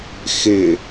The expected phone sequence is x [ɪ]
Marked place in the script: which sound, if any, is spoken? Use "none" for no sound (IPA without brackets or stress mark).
ɪ